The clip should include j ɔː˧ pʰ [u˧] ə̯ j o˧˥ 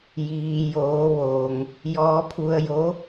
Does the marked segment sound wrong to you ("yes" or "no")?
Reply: no